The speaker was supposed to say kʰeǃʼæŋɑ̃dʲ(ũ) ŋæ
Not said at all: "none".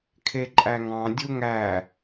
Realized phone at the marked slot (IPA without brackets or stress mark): u